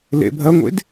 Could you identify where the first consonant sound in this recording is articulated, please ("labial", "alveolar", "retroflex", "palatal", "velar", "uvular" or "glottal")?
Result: alveolar